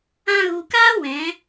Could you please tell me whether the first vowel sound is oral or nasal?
nasal